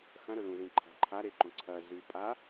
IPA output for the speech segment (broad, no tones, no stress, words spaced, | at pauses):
xɐ̃ɾɵ lũzĩǃʰa̤ ǃʰaɾeǃõ ǀʰɐ zʉpʼa